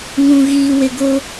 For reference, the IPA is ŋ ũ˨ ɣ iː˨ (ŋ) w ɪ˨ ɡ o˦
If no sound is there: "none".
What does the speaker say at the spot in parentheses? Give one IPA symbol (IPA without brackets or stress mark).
none